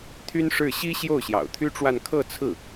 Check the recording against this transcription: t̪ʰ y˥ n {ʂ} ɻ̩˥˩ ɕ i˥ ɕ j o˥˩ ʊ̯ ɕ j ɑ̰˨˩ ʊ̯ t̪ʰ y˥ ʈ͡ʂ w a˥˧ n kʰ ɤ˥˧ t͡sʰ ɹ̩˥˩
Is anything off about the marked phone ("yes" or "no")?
no